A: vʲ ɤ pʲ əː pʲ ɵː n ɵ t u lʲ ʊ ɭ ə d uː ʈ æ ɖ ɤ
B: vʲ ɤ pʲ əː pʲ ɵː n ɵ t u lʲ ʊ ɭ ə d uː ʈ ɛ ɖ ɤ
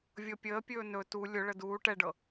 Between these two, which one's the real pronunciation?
B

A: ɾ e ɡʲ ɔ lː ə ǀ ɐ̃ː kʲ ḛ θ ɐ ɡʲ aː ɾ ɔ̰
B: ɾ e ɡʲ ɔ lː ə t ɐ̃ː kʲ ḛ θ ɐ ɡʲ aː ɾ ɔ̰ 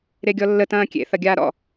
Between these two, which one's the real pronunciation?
B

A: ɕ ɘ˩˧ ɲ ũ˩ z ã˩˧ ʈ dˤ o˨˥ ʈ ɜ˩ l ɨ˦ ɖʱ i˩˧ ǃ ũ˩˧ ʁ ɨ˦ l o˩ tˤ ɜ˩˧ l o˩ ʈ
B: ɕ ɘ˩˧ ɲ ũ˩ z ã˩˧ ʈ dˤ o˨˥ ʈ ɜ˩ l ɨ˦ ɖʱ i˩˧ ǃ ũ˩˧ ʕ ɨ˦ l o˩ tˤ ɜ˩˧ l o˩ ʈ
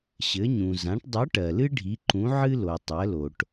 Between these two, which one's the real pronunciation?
B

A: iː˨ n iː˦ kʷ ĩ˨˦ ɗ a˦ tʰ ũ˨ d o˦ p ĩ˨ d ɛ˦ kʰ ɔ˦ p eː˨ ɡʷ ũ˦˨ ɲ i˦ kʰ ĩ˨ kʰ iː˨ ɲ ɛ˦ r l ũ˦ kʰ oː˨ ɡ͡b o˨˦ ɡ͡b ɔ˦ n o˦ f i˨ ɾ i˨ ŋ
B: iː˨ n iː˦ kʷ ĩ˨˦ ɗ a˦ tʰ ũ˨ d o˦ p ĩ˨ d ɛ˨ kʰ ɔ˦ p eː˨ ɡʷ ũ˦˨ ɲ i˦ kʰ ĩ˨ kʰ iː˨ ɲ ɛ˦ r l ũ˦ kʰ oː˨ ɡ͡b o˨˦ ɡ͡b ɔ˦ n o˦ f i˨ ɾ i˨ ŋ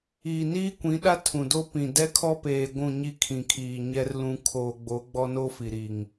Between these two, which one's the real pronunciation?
A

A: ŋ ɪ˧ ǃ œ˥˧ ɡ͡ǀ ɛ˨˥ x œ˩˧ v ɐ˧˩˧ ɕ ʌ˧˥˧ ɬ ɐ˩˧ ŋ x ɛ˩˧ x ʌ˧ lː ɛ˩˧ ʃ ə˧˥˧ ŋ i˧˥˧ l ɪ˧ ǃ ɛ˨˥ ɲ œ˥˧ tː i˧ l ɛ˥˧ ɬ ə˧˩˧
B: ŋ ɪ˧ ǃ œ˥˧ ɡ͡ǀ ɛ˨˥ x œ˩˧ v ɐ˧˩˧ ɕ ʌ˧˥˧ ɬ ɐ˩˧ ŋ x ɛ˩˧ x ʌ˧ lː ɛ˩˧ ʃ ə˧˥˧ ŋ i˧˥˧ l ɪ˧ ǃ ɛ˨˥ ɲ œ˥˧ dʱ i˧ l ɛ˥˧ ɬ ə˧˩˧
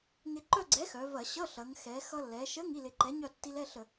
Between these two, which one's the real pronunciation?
A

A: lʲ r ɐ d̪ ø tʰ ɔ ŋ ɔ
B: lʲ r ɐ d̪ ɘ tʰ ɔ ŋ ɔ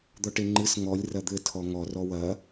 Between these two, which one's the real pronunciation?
B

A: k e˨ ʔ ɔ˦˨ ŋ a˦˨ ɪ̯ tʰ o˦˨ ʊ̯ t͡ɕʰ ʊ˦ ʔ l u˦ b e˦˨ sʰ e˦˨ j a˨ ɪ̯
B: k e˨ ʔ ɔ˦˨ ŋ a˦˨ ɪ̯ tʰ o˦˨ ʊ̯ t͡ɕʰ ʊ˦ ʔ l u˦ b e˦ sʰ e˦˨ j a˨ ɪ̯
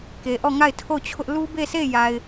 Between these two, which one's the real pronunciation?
A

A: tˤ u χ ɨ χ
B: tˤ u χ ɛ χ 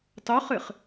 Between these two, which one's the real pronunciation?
A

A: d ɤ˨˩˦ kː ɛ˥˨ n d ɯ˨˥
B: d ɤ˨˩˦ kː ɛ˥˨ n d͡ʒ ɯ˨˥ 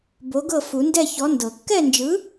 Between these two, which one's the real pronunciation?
B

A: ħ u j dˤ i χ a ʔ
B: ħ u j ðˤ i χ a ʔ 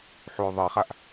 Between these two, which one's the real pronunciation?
B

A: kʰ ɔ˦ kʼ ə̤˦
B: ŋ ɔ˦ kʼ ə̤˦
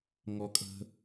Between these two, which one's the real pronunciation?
B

